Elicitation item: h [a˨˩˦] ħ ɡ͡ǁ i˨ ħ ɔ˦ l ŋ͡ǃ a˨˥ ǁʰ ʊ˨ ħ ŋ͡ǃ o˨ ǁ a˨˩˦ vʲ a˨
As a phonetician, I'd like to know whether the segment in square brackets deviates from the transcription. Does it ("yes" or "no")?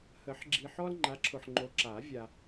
yes